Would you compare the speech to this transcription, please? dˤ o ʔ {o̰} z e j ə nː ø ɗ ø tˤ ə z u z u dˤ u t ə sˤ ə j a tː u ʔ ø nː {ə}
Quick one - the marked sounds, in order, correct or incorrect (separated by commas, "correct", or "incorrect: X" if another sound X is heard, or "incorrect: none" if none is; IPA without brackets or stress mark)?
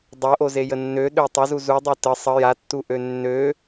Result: incorrect: o, incorrect: ø